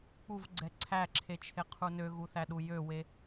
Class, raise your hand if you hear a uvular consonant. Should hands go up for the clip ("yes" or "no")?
yes